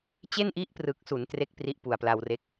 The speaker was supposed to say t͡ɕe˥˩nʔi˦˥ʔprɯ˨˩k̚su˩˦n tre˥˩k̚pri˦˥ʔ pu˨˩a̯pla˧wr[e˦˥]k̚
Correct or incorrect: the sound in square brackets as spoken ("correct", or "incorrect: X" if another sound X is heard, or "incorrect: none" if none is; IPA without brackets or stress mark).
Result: correct